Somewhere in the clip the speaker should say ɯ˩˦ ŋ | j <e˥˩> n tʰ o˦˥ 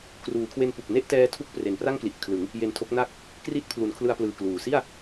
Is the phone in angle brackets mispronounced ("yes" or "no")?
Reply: yes